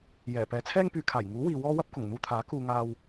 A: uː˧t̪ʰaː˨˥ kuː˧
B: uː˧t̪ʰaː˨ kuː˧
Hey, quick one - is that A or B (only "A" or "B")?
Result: A